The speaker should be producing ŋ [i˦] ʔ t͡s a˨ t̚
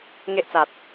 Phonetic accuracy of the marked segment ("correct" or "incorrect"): incorrect